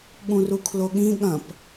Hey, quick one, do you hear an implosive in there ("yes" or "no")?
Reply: yes